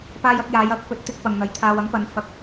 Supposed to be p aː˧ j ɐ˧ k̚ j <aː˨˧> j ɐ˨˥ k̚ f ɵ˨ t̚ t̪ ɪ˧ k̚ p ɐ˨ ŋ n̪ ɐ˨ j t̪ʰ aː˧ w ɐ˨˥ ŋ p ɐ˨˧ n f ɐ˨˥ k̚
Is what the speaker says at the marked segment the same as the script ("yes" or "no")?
yes